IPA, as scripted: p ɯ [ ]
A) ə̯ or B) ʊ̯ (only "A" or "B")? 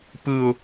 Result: B